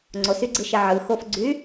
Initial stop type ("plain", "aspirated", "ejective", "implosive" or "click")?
click